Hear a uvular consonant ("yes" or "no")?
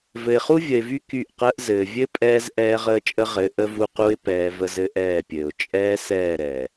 yes